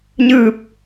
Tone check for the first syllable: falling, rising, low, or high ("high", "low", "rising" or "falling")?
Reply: falling